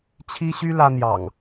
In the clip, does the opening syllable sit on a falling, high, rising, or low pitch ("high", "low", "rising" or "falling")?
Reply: high